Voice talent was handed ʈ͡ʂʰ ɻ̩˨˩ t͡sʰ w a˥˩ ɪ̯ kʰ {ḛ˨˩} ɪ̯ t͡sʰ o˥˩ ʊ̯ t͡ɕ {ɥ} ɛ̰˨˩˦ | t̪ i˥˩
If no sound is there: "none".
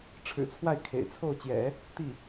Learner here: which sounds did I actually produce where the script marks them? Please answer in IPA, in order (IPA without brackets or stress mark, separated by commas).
ḛ˨˩, j